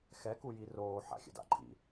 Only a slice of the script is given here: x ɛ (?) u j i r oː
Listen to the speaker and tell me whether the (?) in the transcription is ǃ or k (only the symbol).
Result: k